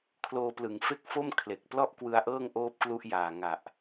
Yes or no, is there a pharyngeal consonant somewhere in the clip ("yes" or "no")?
no